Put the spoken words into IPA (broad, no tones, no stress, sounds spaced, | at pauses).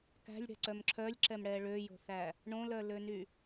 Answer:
k æ̤ lʲ ɽ ɛ̤ ǀ œ m ǁʰ œ lʲ ǁ ɛ m ɽ ɛ ɭ ø j o̤ θ æ | ɳ õ l œ l ø n y